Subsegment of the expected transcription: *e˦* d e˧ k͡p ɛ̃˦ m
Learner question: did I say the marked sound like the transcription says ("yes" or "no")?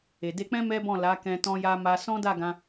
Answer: no